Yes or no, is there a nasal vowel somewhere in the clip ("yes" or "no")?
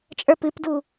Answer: no